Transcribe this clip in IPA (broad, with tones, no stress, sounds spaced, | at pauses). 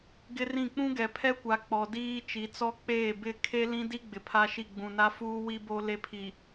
ɡ ɪ˦ r ĩ˦˨ k͡p ũ˦ ɡ ɛ˨ pʰ ɛ˦ kʷ a˨ k͡p ɔ˨ d iː˦ t͡ʃ i˨ t͡s ɔ˦ k͡p eː˦˨ b ɪ˦˨ kʰ e˦ l ĩ˦ d i˦ ɡ͡b ɪ˨ pʰ a˦ ʃ i˦˨ ɡ͡b ũ˨ n a˦ f uː˦ w i˦ b o˦ l e˦ pʰ i˨